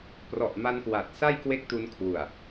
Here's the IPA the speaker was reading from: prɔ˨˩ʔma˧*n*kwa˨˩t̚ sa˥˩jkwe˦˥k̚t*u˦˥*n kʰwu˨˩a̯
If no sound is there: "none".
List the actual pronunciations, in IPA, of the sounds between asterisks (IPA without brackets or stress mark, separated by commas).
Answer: n, u˧